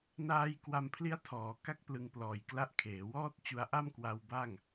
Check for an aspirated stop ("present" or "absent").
present